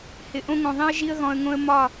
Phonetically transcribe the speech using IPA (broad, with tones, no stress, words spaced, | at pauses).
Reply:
hɪ˧ʔõ˦ŋõ˧ðˤĩ˦ə̯ ʒi˦ə̯ɣɔ̃˧ə̯ŋõ˦ə̯ mɒ˦˨